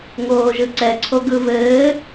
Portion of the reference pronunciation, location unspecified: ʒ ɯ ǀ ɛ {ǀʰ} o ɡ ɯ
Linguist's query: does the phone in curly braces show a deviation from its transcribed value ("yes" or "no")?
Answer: no